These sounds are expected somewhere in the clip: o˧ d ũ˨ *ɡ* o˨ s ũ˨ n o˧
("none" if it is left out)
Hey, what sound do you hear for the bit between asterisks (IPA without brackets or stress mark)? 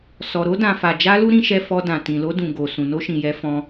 ɡ